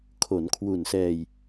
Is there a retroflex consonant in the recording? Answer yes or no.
no